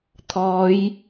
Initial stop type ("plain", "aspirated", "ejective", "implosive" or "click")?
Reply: aspirated